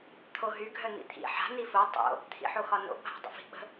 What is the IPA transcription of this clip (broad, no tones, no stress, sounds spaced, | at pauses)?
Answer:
t̪ʰ o ɦ y ɡʱ œ n̪ ḭ t̪ʰ ḭ ħ a̤ n̪ i f o tˤ o̰ | t̪ʰ ḭ ħ o x ɒ n o̰ bʱ a̤ dˤ ə̰ f i̤ ɓ ə̤